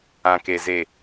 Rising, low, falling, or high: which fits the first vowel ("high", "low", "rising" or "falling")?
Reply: low